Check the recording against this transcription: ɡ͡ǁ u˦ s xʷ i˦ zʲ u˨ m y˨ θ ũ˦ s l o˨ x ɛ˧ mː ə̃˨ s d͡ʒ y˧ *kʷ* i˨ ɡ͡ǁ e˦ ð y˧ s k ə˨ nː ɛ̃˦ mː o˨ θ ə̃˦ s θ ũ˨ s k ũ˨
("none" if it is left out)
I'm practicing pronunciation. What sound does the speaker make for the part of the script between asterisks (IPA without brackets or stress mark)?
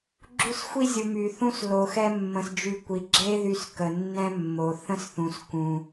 kʷ